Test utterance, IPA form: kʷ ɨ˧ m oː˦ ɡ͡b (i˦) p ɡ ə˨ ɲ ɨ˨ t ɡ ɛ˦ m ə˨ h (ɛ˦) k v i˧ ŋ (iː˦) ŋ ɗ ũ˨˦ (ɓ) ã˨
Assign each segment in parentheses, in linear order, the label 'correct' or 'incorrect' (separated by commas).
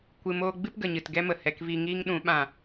incorrect, incorrect, correct, correct